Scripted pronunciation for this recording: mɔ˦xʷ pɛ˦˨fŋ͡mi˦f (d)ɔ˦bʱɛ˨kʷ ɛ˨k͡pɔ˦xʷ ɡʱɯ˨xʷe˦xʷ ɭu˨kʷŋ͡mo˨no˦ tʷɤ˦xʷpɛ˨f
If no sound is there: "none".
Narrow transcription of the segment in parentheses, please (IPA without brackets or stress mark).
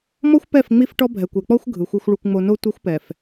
ʈ